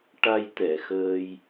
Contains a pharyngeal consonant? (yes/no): no